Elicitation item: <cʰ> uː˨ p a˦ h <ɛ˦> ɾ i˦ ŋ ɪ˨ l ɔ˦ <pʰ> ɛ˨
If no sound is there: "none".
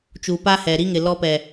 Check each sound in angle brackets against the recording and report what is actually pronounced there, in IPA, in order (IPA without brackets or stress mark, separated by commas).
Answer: t͡ʃ, ɛ˨, p